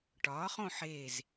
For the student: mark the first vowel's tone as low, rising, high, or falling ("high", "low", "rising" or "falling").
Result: rising